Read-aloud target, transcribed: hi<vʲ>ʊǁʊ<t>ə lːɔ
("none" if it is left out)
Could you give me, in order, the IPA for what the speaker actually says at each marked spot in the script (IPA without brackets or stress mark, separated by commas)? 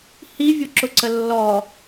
vʲ, ǀ